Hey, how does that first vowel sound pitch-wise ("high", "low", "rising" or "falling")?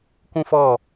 high